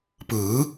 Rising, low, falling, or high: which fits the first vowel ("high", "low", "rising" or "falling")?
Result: rising